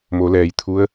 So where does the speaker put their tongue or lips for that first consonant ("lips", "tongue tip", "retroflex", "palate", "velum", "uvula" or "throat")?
lips